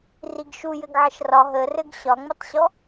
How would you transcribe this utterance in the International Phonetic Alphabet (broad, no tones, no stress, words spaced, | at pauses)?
riɡʃu jɘɡʕəʃrɒ ɦərɘɡ ɕɒŋ͡mɘtˤɕɔ